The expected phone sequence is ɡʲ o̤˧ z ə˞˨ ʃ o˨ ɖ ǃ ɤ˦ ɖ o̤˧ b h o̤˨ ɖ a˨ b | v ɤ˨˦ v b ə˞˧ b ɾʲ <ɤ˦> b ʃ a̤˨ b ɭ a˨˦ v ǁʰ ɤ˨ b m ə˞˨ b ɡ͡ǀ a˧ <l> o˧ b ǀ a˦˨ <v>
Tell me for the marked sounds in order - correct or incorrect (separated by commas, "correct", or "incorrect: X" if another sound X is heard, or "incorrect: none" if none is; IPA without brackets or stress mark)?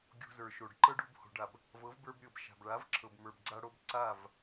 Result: incorrect: ɤ˨, incorrect: ɽ, correct